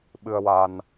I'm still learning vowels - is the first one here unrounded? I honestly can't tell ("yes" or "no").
yes